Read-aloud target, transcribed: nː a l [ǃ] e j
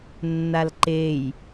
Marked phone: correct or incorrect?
correct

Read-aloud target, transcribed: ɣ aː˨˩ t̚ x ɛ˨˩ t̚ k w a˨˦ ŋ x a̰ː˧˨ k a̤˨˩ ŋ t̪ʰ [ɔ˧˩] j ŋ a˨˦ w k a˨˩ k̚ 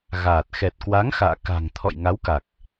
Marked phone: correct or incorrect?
incorrect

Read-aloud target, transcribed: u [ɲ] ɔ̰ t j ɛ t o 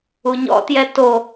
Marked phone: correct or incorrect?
correct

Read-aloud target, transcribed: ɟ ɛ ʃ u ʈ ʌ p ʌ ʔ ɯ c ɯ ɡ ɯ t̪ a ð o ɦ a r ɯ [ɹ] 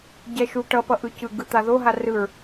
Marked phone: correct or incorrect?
correct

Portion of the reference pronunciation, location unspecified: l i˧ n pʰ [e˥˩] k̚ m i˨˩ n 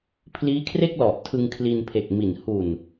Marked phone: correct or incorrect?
incorrect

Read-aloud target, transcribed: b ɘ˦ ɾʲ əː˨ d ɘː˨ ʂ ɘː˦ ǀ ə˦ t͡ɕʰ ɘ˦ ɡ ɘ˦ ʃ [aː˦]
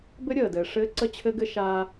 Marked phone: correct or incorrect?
correct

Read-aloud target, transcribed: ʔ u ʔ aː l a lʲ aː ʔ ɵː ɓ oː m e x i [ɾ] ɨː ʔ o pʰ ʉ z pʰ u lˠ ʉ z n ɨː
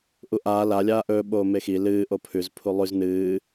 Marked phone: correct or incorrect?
incorrect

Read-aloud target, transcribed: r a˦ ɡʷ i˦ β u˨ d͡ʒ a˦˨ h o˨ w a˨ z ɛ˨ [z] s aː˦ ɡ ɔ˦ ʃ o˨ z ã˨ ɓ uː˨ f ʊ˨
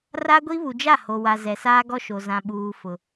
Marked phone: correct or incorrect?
incorrect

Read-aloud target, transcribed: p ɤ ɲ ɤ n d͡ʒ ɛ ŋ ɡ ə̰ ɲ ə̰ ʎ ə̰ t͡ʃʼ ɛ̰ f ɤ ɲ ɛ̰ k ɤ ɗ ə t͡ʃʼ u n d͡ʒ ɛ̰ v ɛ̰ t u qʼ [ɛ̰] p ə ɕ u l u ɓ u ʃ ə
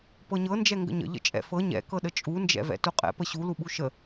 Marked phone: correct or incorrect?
correct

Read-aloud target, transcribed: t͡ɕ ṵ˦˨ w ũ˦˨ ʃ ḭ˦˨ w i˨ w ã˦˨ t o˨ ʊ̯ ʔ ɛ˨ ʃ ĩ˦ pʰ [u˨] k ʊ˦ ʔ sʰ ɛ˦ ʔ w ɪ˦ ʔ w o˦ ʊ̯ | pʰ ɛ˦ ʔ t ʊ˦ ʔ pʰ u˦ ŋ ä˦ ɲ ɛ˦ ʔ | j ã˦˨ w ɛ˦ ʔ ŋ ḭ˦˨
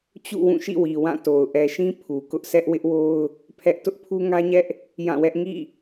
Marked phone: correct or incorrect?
correct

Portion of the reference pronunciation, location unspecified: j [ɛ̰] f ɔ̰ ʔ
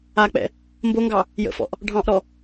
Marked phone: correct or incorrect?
incorrect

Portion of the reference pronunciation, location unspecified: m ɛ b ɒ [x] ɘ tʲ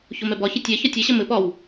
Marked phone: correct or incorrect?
incorrect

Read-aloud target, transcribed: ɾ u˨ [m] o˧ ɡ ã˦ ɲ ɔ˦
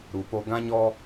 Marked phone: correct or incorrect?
incorrect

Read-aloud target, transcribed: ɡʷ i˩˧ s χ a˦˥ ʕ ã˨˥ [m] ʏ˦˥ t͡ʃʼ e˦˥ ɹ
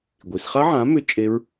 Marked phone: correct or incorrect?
correct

